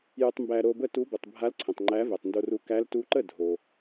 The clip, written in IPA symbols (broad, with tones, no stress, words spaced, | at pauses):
jɯ˧tˤmbæ˧ ɾo˧bə˥˩tu˧˥ bɯ˩tˤbʱa˧˥lǀʰə̃˩tˤ ŋ͡ǃæ˧˥vɛ˩tˤndo˧ru˧ kæ˧˥ltu˧˥ ǃə˥˩ dʱo˩